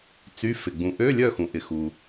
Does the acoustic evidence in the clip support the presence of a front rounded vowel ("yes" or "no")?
yes